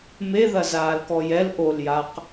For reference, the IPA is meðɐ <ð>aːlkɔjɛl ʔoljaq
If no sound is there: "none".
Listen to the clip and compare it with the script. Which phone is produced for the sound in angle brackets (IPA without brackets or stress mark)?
z